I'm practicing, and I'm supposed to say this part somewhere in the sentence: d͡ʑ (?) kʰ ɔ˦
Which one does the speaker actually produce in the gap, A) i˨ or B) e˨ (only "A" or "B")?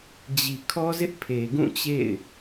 A